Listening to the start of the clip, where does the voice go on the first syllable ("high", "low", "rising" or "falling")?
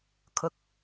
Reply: rising